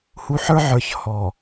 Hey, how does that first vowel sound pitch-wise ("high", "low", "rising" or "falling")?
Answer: low